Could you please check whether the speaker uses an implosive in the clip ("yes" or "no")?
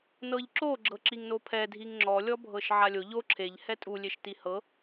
no